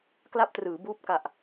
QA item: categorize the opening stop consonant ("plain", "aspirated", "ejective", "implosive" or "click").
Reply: plain